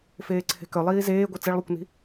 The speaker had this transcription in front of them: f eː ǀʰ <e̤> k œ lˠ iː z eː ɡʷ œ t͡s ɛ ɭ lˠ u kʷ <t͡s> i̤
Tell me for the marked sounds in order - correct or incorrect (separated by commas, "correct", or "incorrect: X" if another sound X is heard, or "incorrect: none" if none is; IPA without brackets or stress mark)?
correct, incorrect: n